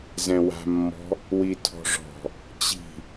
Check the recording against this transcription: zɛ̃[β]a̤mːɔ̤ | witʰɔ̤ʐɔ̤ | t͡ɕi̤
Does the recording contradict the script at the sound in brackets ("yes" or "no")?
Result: yes